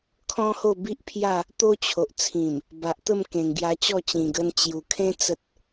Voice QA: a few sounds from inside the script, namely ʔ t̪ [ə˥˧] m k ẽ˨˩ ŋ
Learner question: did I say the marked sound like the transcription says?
yes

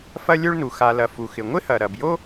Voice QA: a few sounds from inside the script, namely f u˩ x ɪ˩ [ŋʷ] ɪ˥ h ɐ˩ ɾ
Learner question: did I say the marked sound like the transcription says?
yes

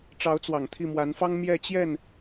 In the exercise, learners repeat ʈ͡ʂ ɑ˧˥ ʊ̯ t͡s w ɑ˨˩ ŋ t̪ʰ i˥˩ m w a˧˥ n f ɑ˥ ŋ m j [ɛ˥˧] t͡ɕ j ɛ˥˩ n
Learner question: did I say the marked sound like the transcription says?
yes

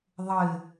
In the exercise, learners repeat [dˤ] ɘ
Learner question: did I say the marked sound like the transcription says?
no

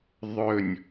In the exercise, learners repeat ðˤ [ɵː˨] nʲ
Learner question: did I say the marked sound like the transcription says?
no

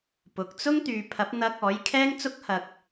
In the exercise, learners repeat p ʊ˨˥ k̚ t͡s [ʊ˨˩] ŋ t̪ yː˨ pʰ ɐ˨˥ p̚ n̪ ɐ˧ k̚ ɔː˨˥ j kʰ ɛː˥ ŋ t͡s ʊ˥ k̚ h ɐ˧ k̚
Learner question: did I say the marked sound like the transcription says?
no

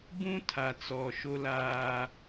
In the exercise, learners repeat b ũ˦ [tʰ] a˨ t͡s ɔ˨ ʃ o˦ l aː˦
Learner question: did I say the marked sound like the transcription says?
yes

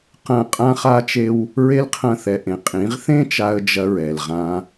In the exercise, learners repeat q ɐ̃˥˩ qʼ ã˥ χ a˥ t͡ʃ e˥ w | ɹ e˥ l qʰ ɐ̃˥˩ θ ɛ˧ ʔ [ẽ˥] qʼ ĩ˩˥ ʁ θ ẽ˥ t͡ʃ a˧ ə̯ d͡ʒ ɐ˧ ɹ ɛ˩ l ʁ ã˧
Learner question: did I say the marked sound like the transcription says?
no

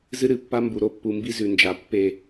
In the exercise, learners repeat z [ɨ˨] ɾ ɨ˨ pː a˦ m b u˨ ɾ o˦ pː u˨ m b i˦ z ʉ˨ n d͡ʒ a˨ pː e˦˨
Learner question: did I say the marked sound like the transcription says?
no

